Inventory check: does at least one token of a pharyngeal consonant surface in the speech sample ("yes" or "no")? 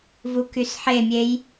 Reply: yes